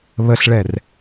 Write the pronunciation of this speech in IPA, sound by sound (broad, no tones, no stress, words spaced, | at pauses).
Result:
βəɬɭɛr